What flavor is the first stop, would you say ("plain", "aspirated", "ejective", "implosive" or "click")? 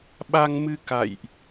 implosive